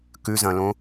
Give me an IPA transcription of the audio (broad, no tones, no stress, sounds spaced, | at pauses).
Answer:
k ʉ z ɐ̃ l õ